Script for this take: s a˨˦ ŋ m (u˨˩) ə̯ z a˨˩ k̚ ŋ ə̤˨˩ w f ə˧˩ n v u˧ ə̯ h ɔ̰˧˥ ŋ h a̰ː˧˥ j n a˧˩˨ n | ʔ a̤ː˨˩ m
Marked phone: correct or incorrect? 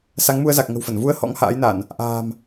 incorrect